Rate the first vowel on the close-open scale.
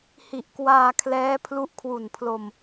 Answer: close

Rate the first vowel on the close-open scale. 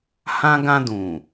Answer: open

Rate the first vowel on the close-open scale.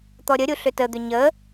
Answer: mid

